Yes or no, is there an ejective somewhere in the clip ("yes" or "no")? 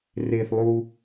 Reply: no